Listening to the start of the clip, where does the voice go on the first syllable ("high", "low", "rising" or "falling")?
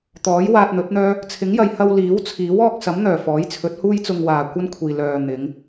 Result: rising